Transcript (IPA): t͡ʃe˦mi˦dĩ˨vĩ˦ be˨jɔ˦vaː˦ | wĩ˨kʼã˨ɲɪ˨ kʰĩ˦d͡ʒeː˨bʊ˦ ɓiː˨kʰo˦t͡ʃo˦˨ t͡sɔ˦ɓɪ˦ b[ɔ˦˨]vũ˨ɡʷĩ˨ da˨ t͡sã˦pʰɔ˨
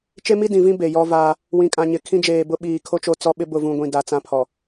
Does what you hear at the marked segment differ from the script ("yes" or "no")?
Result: yes